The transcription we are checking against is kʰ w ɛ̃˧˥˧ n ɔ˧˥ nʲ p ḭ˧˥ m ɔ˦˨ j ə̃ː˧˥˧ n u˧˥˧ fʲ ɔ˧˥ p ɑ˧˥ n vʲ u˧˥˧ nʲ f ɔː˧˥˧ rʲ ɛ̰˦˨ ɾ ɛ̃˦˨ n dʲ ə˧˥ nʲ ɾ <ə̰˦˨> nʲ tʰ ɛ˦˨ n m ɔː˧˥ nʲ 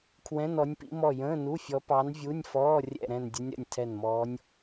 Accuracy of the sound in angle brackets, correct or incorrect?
correct